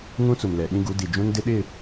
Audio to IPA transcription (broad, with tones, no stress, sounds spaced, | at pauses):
ŋ ũ˦ t͡s u˨ m l ɛ˨ ɗ ĩ˦ ɡ u˨˦ d i˨ d͡ʒ ũ˦ n d ɪ˦ ɗ ɪ˦˨